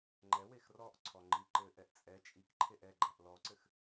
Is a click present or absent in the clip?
present